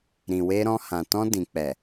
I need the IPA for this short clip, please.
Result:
ɾ ĩ˨ w e˧ ɾ ɔ̃˧ h ã˨ t ɔ̃˧ d ĩ˨ k͡p ɛ˨

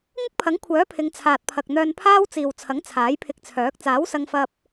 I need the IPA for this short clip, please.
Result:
ŋ ɪ˥ k̚ pʰ ɐ˨˥ ŋ kʷʰ œː˨˥ pʰ ɪ˨˧ ŋ t͡sʰ aː˨ t̚ pʰ ɐ˨ k̚ n̪ œː˧ n pʰ aː˥ w t͡s iː˨ w t͡sʰ ɐ˨˥ ŋ t͡sʰ aː˨˥ j pʰ ɪ˧ k̚ t͡sʰ œː˨˥ k̚ t͡s aː˨˥ w s ɐ˧ ŋ f ɐ˧ p̚

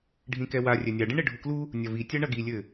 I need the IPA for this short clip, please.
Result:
ɖʱ ĩ k ɛ w a rʲ ɛ nʲ a ɖ ĩ ɳ e ɖʱ u k l u | nʲ ɐ v i tʲ a ɳ ɐ ɡ i lʲ ɘ

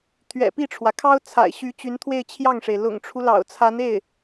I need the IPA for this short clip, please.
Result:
t̪ʰ ɥ ɛ̰˨˩ p i˥˩ ʈ͡ʂʰ w ä˩ kʰ ɑ˥ ʊ̯ t͡sʰ a̰˨˩ ɪ̯ ɕ y˧˥ t͡ɕ y˧˥ n t̪ʰ w e˥˧ ɪ̯ t͡ɕʰ j ɑ˥˩ ŋ ʂ e˩ ɪ̯ l ʊ̰˨˩ ŋ ʈ͡ʂʰ u˦ l ɑ̰˨˩ ʊ̯ t͡sʰ a˧˥ n e˥˩ ɪ̯

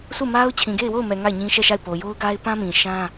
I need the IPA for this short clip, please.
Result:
sʰ u˦˨ m a˦ ʊ̯ t͡ɕʰ ĩ˨ ɡ e˦˨ ɪ̯ w o˦˨ ʊ̯ m ɛ˨ ŋ a˦˨ ɪ̯ ɲ ĩ˦ ʃ ɛ˦˨ ʃ a˦˨ ɪ̯ p o˨ j o˦ ʊ̯ ɡ a˦ ɪ̯ p ã˦ m ĩ˨ ʃ ã˦

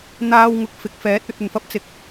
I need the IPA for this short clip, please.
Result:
n̪ aː˧ w ŋ ʊ˨ k̚ f ɪ˨˥ k̚ f ɛː˨˥ t̚ ɵ˧ t̚ ɵ˨˩ n f ɐ˧ p̚ t͡s ɪ˨ k̚

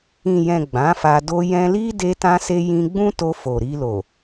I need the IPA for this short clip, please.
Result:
ĩ˨ j ɛ̃˨ ɡ͡b ã˨˦ f a˧ d o˧ j ɛ̃˧ l i˦ d e˧ t ã˧ s e˧ j ĩ˧ ɡ͡b ũ˦ t o˧ f o˨ ɾ i˧ l o˨

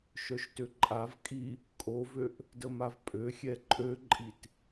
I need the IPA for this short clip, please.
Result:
ʃ œ ʃ t ø ǃʼ a v kʼ i | kʼ o v ø ʔ | d ə m a v pʼ ø xʲ ɛ ǃʼ ø ǃʼ i t

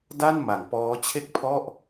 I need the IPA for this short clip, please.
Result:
d a˥˩ n m a˩˦ ŋ p ɔː˦˥ t͡ɕʰ e˥˩ k̚ pʰ ɔ˥˩ ʔ

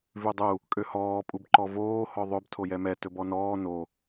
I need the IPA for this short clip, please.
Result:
v ʉ dˤ u | kʼ ø h ɔː pʼ u b ǃ ɔ v oː h ɔ ðˤ ɵ b tʰ o j ɛ m ɛ t ɵ b ɔ n ɔː n o

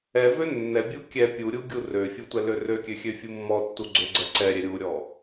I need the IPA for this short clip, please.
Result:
ɛ v ø nː ɛ bʲ u kʲ ɛ pʲ u ɾʲ u ɡʲ u r ø fʲ u tʷ ɛ l ø r ø kʲ ø xʲ ø fʲ u mː ɔ tː u ɡ͡ǀ ø ɡ͡ǀ ɛ ǀ ɛ ɾʲ ɛ ɾʲ u ɾʲ ɔ

